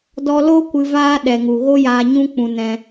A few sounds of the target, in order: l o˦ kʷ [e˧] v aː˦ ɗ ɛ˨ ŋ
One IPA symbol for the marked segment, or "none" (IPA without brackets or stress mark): ɨ˧